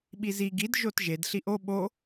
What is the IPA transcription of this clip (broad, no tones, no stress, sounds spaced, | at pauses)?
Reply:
ɓ i z i ɡ i d ʒ o t ʒ e d ɬ i ʔ o ɓ o